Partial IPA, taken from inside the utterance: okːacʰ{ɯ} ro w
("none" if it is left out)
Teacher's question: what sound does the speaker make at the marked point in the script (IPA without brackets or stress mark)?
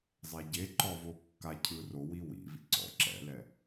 ɯ